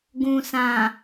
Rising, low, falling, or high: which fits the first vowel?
low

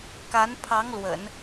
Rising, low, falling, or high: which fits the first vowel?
rising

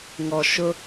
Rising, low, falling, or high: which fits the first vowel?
low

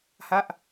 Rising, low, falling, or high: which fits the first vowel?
falling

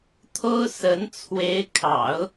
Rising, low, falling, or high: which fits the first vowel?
high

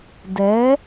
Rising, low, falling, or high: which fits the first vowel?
rising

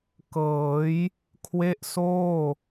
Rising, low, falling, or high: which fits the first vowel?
rising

